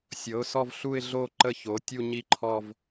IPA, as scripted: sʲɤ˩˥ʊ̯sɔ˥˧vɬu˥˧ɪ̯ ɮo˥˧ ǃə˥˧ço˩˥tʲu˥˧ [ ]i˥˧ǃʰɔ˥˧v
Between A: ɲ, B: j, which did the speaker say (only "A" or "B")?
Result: A